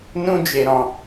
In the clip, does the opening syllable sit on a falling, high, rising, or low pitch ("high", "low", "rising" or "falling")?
high